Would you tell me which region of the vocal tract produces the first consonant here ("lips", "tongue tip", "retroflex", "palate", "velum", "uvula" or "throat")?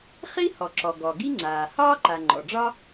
uvula